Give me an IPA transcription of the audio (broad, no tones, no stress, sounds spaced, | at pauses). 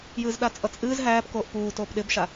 j ɨː z ɗ a t͡sʼ ʌ t͡sʼ ɨː z ɦ æː p k oː ʔ p uː t oː p ɗ ɪ b ʃ a